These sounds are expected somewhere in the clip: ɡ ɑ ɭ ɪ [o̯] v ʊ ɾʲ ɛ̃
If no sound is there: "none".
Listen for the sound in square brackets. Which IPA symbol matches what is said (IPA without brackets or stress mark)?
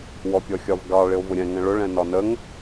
o̯